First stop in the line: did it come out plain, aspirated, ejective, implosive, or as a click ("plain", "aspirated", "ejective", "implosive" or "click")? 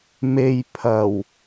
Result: aspirated